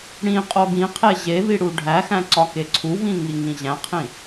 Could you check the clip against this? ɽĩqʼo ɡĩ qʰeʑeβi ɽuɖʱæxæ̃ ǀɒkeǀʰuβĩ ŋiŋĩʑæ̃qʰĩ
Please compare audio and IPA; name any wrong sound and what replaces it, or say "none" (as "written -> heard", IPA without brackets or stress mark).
none